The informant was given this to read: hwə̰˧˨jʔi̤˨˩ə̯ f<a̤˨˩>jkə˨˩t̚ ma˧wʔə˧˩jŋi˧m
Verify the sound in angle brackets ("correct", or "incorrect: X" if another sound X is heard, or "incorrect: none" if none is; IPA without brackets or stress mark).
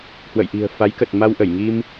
incorrect: a˨˦